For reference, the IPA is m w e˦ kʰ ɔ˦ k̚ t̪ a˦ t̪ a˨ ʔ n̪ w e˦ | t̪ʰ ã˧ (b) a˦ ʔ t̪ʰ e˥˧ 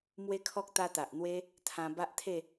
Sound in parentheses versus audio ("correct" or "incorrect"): correct